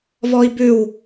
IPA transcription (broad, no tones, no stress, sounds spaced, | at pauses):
v ɔ i̯ b ʉ w